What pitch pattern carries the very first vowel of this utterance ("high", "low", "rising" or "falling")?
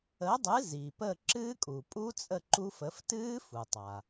rising